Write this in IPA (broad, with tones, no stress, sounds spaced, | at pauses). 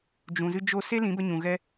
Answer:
d͡ʒ ũ˨ z ɨ˧ d͡ʒ o˧ s e˦ l ĩ˨˦ b ə˧ ɲ ũ˨ ɣ ɛ˧